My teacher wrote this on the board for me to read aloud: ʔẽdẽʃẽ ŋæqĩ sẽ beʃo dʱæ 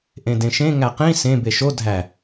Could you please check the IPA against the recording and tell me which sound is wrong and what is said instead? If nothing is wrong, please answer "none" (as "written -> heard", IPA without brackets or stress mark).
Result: none